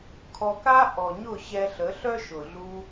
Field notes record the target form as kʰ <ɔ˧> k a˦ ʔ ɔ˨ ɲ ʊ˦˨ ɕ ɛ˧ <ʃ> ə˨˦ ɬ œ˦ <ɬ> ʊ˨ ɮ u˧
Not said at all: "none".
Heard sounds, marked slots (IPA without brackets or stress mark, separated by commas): ɔ˧, ɬ, ʃ